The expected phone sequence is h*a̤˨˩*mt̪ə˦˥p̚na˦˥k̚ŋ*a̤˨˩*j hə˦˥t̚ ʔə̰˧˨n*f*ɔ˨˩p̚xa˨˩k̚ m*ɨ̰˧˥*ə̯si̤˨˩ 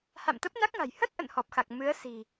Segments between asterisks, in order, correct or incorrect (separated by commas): incorrect, correct, incorrect, incorrect